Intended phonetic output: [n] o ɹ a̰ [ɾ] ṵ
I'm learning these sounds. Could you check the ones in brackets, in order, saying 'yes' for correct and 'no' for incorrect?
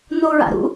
yes, yes

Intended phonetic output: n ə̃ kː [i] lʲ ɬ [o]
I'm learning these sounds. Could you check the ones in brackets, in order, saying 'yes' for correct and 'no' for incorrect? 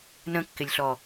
no, no

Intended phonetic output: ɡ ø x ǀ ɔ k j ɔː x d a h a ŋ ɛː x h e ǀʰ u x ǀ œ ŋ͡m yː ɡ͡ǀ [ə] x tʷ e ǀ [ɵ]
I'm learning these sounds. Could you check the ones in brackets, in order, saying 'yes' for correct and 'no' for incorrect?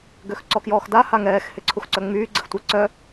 yes, no

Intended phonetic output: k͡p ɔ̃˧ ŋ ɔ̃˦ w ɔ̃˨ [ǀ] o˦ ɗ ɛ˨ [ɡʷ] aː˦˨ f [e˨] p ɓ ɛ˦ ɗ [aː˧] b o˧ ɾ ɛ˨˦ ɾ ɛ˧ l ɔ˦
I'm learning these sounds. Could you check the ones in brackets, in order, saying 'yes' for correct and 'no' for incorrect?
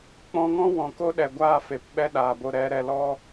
no, yes, yes, no

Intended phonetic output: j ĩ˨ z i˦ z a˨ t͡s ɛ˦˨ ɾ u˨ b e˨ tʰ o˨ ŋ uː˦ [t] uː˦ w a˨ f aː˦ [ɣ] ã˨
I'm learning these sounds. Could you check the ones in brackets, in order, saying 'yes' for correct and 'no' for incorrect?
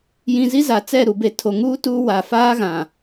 yes, yes

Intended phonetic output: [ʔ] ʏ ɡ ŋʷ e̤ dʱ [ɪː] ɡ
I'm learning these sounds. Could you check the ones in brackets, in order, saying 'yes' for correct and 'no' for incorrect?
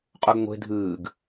no, no

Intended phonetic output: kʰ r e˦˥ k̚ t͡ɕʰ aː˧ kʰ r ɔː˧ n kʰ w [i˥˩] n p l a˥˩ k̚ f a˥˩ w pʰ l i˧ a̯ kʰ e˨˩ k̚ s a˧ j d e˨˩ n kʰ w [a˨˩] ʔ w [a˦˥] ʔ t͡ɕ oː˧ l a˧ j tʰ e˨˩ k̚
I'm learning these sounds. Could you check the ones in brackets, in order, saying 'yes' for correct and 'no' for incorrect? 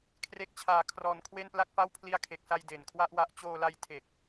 no, no, yes

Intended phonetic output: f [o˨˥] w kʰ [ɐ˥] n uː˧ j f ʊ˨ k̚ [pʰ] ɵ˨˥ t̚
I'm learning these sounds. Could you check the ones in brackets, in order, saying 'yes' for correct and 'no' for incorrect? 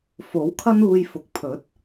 yes, yes, yes

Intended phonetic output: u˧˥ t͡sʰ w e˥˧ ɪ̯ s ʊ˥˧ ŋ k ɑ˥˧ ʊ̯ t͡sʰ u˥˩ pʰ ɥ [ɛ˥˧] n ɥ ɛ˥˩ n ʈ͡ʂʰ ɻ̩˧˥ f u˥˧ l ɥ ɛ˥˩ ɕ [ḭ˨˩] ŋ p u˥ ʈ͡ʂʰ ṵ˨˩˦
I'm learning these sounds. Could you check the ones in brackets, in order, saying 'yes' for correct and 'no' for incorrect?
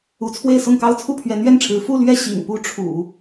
no, yes

